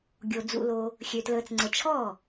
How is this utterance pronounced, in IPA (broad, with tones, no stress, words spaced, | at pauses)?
ɡʲo˨ d͡zṵ˨lo˨ | xʲø˨tləː˨t͡sŋ͡ǀə˨ t͡ʃʰɔ˥˩